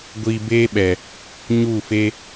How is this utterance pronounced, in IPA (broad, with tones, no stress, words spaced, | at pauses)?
ɡʷiː˧beː˦ɓɛ˨ | ɲu˦˨fe˦